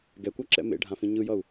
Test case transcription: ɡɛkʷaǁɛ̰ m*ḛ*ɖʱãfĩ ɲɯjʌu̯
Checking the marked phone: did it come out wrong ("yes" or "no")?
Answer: no